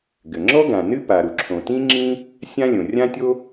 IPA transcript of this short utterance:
ɡɘ˩ ŋ͡ǁɔ˥ ɡã˩ nɨ˥ pa˩ɾu˩ǁʰõ˩ tĩ˥ŋ͡ǁĩ˥ | sʲã˥ lʲõ˩rʲã˥tʲo˥

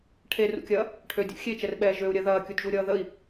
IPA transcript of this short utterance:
ʈʰerṵkʲɐː | ʈʰødʲṵ xʲet͡ʃɛrɓɛː ʒøu̯ɾʲɜ ðɐːkʲudʒuɾʲʌː ðəi̯

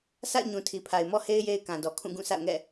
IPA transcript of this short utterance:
sa̰˦˨ɪ̯ ɲũ˨tʰi˨pʰa˨ɪ̯ mɔ˦he˦ɪ̯ je˦ɪ̯kã˨dɔ˨ kʰũ˦˨ɡũ˦˨sʰa̰˦˨ʊ̯ŋɛ̰˦˨

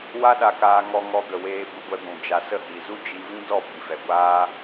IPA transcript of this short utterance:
wa˦ɗa˧kaː˧ ŋɔ˧ŋɔ˧ɡə˨ weː˧bu˧ɡʷɛ˧ɡʷũ˨ d͡ʒa˨sə˦˨ hi˨zu˦d͡ʒi˧ vĩ˦dɔ˦˨ bi˨fɛ˨ ɡʷaː˦

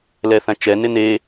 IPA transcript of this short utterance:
lɛθãt͡ʃɛ nɪne

